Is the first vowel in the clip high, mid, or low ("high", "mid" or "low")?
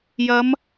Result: low